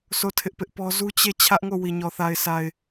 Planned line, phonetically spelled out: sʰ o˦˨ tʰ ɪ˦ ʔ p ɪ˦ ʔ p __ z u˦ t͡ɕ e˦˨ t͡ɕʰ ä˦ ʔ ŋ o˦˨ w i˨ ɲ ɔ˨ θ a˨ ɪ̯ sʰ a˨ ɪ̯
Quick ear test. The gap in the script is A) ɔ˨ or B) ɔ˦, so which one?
B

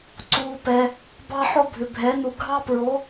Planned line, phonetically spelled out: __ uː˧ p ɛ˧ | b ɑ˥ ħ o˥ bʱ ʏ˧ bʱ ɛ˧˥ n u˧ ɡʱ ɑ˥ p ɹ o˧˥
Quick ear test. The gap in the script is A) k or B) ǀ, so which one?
B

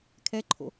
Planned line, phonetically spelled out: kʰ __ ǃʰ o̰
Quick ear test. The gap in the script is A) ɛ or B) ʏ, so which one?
A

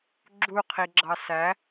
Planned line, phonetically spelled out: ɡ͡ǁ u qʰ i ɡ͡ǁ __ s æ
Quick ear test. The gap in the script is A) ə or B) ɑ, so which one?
B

